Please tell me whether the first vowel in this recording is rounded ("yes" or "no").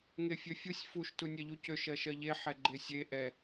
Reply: no